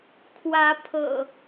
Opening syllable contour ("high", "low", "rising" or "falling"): rising